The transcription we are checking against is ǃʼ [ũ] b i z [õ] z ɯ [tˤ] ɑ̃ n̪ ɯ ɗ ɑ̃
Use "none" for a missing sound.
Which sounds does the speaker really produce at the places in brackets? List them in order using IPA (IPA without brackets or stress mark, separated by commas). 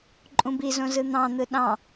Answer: ũ, õ, n̪